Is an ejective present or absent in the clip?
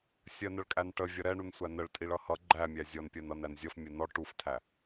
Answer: present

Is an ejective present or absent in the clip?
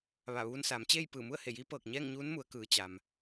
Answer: absent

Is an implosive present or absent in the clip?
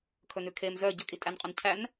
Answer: absent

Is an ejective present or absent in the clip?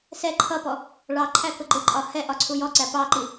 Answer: present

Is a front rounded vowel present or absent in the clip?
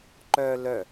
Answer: present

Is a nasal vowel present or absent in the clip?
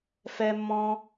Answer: present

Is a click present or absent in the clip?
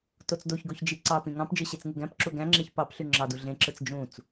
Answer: present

